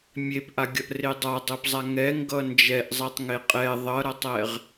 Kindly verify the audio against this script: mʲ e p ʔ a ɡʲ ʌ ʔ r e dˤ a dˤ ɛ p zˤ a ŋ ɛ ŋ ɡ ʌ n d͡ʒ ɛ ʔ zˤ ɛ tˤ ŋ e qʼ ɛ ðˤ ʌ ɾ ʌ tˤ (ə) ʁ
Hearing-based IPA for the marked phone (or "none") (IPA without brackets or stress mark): ɛ